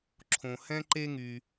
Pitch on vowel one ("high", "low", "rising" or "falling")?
low